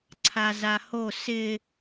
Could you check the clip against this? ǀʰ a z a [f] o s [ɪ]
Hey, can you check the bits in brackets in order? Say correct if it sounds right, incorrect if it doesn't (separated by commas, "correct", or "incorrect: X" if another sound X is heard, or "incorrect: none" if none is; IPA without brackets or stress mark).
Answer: incorrect: h, correct